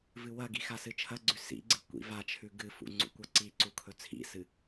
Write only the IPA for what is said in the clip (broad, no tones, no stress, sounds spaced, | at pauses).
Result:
v ɨ w ɐ ɡ i x a s ɨ t͡ʃʰ ɐ ɡ͡ǀ ʉ s ḭ ɡ͡ǀ ɨ kʷ ḭ v a t͡ʃʰ ʉ ɡ ɨ f ṵ ŋ͡ǀ ṵ kʷ ɐ ǀ i ǀ u kʰ ɵ t͡sʰ ḭ s ɨ